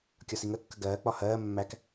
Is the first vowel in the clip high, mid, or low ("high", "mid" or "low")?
low